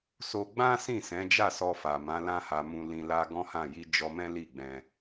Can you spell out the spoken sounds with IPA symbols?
s o˧ ɡ͡b ã˦ s ĩ˦˨ s ɛ̃˨˦ d͡ʒ a˦˨ s ɔ˧ f a˨ m ã˨˦ l ã˦ h a˧ m ũ˧ l ĩ˧ l a˦ ɡ ɔ̃˦ h ã˦˨ j i˧ d͡ʒ ɔ˧ m ɛ̃˦ l i˦˨ ɡ͡b ɛ̃˧

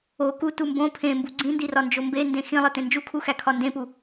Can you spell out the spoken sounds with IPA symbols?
o k u t u m b õ pʰ ẽ m b u ɡ͡ǀ ĩ n d i r ɒ n d͡ʒ o m b e n d ẽ x ĩ lˠ e t ẽ n d͡ʒ u kʰ u x æ kʰ ɒ n d ẽ p u

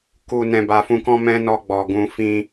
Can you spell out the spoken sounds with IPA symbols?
k u˨ n ɛ̃˨ b a˨ f ũ˧ k ɔ̃˦ m ɛ̃˦ n ɔ˧ ɡ͡b ɔ˨ ɡ ũ˧ f ĩ˦

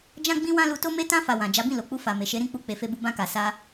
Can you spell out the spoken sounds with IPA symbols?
d͡ʒ ã˦ ɡ͡b ĩ˦ w ã˦ l u˧ t o˦ m e˧ t ã˧ f a˨ w ã˨ d͡ʒ a˨˦ b ĩ˦˨ l o˨ k͡p u˧ f a˨ m e˨ ʃ e˨˦ ɾ ĩ˦˨ k͡p u˧ k͡p e˨ f e˧ b u˧ b ã˧ k a˨ s a˧

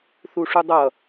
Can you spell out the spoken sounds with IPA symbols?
θ u ʂ u dˤ ʌ

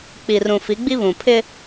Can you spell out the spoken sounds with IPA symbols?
k͡p i˨ r ũ˨ f i˨˦ ɡ͡b i˦ β ũ˨ pʰ ɪ˦

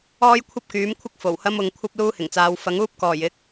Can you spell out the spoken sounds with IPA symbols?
ɔː˥ j kʷʰ ɐ˥ p̚ k yː˨˥ m kʷʰ ɪ˥ k̚ f o˨˩ w h ɐ˥ m ʊ˨˧ ŋ kʷʰ ɐ˥ p̚ l uː˥ h ɪ˨˩ ŋ t͡s aː˨˧ w f ɐ˨˥ ŋ uː˥ p̚ k ɔː˨˩ j ɪ˨˥ k̚

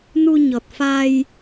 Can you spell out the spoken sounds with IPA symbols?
n u˧ ɲ ɔ˨˩ t̚ f a˧ j

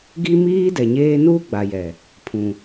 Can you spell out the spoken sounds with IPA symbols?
ɡ i˦ m iː˦ d ɛ˨ ɲ eː˦ n uː˦ ɡ͡b a˨ j ɛ˨ | pʰ ũ˨

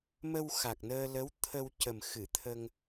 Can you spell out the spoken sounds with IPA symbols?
m ə˧ w x a˨˩ k̚ n əː˧ l ə˧˥ w t̪ʰ ə˧ w c ə˨˩ m x ɨ˨˩˨ t̪ʰ ə˧ ŋ

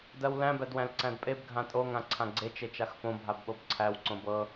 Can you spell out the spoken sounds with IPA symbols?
d ɜ w l æ̃ b æ d w æ̃ l ǀ æ̃ d pʼ e b ɡʱ ã tʼ o ŋ ã ǀʰ ã ɡ͡ǀ e t͡ʃ e t͡ʃ a x f õ bʱ a b ɓ o b ǀʰ æ w ǀ õ b ɤ

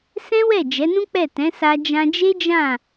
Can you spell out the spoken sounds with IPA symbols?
s ɛ̃˦ w ɛ˦˨ d͡ʒ ɛ˨˦ n ũ˦ k͡p ɛ˦˨ t ɛ̃˨˦ s a˧ d͡ʒ ã˧ d͡ʒ e˦ d͡ʒ ã˦˨

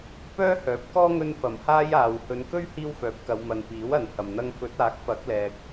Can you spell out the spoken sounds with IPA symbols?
p œː˥ h œː˨˥ p̚ k ɔː˥ ŋ ɵ˥ n f ɐ˨˩ m h aː˥ j aː˨ w h ɵ˨˧ n k ɵ˥ ɥ h iː˥ w f œː˨˥ p̚ k ɐ˨˧ w m ɐ˨ n p iː˨˥ w ɐ˨ n h ɐ˨ m n̪ ɐ˥ ŋ f ɵ˨˥ t̚ aː˨˥ k̚ f ɐ˨˥ k̚ l ɛː˨ k̚

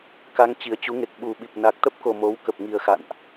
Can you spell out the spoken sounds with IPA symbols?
k a˧ ŋ t͡ɕ i˨˩ ə̯ t͡ɕ u˨˦ ŋ e˨˩ k̚ ɓ u˨˩ ɓ i˨˩ p̚ n a˨˩ k̚ t̪ ə˦˥ p̚ k o˨˩ m o˨˦ w k ə˨˩ p̚ ŋ i˨˩ ə̯ x a̰˧˨ n ʔ

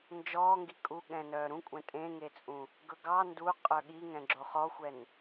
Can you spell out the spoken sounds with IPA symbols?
n d͡ʒ ɔː ŋ ɡ i kʼ u ɠ ɛ̃ n œː ɾ ũ kʷʼ ɛ̃ tʼ ẽ ŋ e t͡sʼ ũ | ɡ ɵ ɡ ɑ n d u qʼ œ ɠ i ŋ ɛ̃ ɡ͡ǁ o χ ɔ xʷ ɛ n

